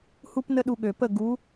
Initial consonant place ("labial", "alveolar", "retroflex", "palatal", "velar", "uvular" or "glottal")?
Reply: glottal